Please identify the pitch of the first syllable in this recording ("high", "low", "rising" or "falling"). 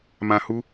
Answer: low